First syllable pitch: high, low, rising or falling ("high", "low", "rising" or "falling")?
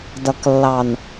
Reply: low